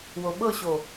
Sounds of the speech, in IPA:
w o ɓ ɤ ɕ o

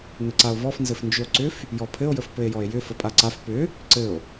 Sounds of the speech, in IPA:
n ɘ ǀ a o̯ v ɔ f n z ɘ f n d͡ʒ ʏ o̯ ǀ ʏ f | j ɔ pʰ ɘ o̯ j ə f p ɘ e̯ j ɔ e̯ j ʏ f ə pʼ a ǀ a f p ʏ | ǀ ɘ o̯

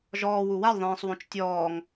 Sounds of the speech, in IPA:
ʒ ɔː w u w a lʲ ðˤ ẽː sˤ w õ t͡ʃ tʲ ɔː ŋ

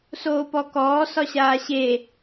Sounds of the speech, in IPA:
s oː p ɔ k ɔː s ɒ ɕ aː ɕ e

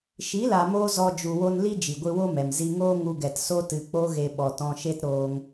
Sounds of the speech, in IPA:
ʃ i˨˦ l a˨ m oː˧ z ɔ˧ d͡ʒ u˨ w o˧ n l i˦ d͡ʒ i˨ ɡʷ ɨ˧ w o˦ m ɛ˨ m z i˧ ŋ oː˦ ŋ u˧ ɡ ɛ˨ t s o˦ t ɨ˧ k͡p o˦ ɣ e˧ ɓ ɔ˨ t ɔ̃˧ ʃ e˦ t ɾ oː˧ ŋ

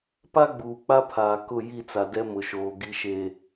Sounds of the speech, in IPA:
p a˦ ɡ͡b uː˨ k͡p a˦ pʰ aː˨ k ʊ˦˨ j i˦˨ t͡s a˨ d ɛ˦ m ʊ˨ ʃ oː˨ ɡ i˦ ʃ e˦

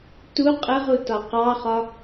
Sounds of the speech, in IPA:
t u qʼ ə ʁ u t ɒ q ɑ χ ɒ

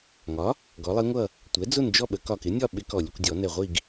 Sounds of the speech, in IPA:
ŋ ɒ˩˥ | ɡ ɔ˩˥ lˠ i˧˥ ŋʷ ʌ˥˨ | tʷ ɛ˩˥ d͡z ʊ˥˨ n d͡ʒ ɔ˥˨ ɓ ə˩˥ k ɒ˧˩ k ɪ˩˥ nʲ ɒ˥˨ ɓ ɪ˧˥ k ɔ˧˩ lʲ ʊ˥˨ kʷ dʲ ɔ˨˩˦ n ɛ˧˩ ʁʷ i˥˨ ɡ

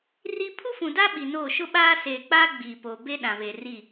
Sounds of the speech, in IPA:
r i˦ pʰ u˦ f ũ˨ d a˦ ɓ i˨ n o˦˨ ʃ ʊ˦ ɓ aː˦ s eː˨ k͡p aː˦ ɡ͡b iː˨ p oː˨ b e˦ ɗ ã˨ β e˨ r i˦˨

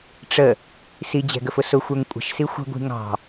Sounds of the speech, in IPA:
ʈ͡ʂ ə | s i d͡ʑ ɛ̤ ɡ ə f ʊ s ʊ xʷ ə˞ ŋ kʷʼ ə̤ ʃ s i xʷ ə̤ ɡʷ i̤ ŋ ɑ̤

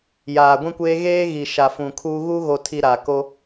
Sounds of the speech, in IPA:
j aː˨ ɡʷ ĩ˦ kʷ eː˦ ɣ eː˦ ɣ i˨ ʃ a˨ f ũ˨ kʰ uː˦ ɣ u˦ ɣ o˨ tʰ i˨ ɾ a˨ k o˦

